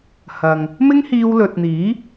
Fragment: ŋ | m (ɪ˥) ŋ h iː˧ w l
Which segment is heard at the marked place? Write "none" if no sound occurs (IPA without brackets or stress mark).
ɪ˥